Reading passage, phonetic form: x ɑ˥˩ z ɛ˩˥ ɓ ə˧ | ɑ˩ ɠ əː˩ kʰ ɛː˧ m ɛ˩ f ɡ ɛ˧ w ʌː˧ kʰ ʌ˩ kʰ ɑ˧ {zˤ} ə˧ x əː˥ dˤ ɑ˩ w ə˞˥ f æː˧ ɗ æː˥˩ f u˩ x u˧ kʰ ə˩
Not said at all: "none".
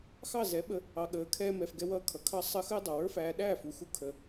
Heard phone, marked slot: sˤ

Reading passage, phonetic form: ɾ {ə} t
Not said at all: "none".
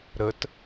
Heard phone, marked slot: ə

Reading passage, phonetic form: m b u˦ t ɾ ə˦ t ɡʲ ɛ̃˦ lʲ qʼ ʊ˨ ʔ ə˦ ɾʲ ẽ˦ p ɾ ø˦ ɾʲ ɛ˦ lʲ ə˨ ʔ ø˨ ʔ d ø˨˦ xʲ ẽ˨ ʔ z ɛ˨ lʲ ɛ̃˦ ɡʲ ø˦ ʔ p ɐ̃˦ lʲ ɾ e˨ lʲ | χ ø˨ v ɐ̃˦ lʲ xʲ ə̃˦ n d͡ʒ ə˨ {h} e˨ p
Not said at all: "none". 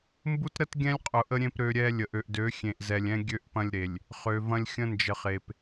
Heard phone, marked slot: χ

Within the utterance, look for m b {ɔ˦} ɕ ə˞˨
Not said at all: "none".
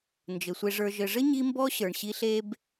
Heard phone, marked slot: ɔ˦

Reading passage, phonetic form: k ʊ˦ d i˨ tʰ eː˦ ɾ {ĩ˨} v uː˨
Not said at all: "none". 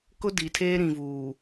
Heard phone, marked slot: ĩ˨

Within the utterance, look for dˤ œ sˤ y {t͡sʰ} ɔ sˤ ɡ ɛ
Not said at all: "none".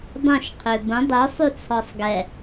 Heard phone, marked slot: t͡sʰ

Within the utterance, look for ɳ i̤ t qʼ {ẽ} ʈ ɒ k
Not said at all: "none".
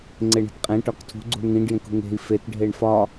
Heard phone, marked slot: ẽ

